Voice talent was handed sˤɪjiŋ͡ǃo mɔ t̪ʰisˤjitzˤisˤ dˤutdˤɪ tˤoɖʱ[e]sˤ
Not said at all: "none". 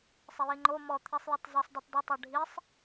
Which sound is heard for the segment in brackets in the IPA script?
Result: i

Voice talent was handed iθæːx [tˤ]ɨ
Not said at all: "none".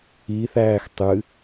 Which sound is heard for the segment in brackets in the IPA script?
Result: tˤ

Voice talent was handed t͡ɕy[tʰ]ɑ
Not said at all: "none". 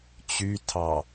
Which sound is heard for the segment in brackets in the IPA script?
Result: tʰ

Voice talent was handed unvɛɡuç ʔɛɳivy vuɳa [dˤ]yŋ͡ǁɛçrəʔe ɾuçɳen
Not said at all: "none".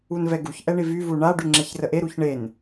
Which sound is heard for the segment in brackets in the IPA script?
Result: ɖ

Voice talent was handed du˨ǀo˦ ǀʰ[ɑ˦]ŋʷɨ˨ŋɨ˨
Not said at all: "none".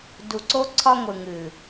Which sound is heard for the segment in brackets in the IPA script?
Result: ɒ˦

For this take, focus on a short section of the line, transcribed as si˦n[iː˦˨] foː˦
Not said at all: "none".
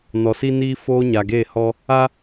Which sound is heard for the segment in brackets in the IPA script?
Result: iː˦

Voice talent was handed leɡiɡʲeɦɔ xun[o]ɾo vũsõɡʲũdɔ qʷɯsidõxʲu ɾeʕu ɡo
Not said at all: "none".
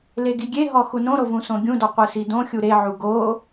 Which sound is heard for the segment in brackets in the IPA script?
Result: õ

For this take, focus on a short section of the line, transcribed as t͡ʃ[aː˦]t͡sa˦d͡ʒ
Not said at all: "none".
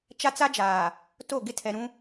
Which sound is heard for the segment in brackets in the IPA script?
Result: a˦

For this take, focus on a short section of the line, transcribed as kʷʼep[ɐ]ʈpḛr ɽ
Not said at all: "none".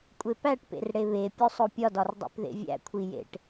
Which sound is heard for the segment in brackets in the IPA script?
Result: æ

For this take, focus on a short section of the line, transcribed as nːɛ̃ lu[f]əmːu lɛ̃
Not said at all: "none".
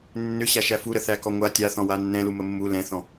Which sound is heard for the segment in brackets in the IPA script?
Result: m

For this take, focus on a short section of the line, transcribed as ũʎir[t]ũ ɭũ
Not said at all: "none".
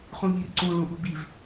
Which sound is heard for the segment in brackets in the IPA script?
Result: ǀ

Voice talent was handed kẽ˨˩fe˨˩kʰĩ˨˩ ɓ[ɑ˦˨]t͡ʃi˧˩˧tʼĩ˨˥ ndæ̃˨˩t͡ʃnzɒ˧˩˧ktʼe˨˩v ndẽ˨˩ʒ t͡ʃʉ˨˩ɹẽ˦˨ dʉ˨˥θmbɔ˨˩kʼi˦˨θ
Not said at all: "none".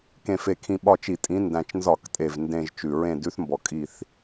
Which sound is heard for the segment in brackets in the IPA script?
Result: ɒ˦˨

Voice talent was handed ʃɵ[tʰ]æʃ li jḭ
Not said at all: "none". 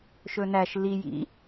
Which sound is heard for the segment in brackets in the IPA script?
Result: n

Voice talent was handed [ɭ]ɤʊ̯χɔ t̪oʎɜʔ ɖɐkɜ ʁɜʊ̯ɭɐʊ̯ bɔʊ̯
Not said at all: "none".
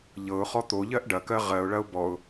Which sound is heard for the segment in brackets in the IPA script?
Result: ʎ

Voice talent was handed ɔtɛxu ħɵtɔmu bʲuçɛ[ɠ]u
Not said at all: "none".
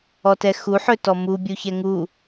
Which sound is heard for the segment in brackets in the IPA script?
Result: ŋ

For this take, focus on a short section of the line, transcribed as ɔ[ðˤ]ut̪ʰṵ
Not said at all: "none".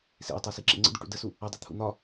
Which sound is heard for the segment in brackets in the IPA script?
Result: dˤ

